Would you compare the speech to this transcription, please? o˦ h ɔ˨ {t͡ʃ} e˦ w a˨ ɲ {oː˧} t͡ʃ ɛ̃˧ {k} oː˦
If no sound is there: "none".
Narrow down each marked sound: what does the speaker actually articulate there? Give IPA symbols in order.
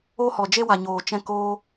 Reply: d͡ʒ, oː˨, k

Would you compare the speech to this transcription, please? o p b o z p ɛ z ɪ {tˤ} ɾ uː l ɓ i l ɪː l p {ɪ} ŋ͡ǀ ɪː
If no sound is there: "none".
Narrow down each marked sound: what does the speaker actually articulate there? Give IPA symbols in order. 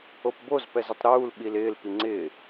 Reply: tˤ, i

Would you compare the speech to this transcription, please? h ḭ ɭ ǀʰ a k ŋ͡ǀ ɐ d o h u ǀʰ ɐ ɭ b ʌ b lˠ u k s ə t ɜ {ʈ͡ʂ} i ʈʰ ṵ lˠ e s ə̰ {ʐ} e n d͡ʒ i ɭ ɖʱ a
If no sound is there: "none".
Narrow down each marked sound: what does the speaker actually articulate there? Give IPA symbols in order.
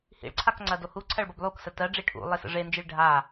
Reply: ɖ͡ʐ, ʐ

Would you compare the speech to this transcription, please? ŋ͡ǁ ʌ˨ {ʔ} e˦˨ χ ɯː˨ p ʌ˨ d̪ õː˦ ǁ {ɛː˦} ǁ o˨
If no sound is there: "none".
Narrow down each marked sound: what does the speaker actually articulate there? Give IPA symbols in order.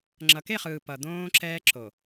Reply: k, ɛː˦

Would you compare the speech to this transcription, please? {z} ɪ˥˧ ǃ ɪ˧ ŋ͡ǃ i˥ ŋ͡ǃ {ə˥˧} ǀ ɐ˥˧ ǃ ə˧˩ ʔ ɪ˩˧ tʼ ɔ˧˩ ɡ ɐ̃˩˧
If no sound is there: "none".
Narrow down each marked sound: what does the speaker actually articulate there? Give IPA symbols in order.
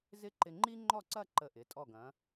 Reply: z, ɔ˥˧

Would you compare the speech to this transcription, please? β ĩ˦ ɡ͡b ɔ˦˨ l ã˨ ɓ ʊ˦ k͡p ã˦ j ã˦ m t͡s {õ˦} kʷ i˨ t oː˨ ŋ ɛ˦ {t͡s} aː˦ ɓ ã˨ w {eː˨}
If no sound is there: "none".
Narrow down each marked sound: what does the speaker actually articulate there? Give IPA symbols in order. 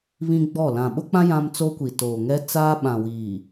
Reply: o˦, t͡s, iː˨

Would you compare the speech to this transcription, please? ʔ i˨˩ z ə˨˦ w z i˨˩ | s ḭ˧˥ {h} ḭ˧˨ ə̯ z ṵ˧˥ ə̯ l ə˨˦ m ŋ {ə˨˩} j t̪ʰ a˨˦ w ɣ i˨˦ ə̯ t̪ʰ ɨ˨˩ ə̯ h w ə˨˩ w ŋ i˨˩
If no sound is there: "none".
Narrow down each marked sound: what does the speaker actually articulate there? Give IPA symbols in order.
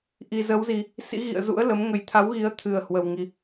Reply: ɣ, ə˨˩

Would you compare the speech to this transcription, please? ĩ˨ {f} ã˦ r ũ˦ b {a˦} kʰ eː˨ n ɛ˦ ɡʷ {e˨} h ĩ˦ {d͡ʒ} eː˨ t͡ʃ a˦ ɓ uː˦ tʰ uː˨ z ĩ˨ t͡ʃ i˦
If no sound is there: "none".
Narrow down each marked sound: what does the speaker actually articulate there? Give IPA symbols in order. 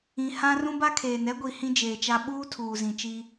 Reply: h, a˦, i˨, d͡ʒ

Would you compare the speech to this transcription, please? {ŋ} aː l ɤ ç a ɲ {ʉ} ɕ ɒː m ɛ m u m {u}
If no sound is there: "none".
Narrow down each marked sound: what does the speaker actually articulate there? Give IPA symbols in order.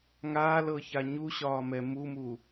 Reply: ŋ, u, u

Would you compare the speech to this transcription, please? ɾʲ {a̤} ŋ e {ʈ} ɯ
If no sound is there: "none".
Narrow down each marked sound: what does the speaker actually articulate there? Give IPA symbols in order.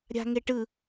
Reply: a̤, ʈ

